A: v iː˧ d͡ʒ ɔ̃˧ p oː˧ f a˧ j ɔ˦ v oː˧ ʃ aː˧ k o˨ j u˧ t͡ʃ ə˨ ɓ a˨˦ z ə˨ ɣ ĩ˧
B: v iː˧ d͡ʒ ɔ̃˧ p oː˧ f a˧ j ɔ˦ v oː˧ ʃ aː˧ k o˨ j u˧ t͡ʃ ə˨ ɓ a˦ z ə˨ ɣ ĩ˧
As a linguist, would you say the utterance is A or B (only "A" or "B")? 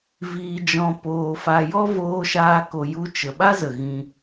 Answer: B